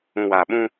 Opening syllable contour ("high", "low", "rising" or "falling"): low